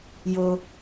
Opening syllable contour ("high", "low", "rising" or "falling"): high